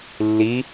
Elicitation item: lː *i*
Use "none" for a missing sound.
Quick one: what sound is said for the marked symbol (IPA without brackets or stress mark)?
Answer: i